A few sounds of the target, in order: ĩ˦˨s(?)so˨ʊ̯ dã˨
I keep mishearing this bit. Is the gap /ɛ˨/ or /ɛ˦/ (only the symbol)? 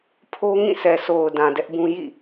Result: ɛ˨